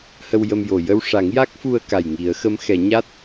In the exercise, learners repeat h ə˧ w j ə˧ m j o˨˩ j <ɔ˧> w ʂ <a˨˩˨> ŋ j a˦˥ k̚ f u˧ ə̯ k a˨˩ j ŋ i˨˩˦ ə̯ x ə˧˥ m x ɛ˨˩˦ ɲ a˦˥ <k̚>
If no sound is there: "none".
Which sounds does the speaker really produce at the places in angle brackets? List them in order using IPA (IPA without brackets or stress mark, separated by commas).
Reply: ə˧, a˨˩˦, t̚